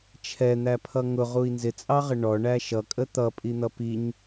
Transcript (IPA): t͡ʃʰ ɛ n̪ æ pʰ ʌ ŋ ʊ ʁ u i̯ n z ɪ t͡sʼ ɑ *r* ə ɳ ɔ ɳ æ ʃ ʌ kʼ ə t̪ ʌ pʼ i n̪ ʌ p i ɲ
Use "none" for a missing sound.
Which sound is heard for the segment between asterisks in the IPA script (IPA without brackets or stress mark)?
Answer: ʁ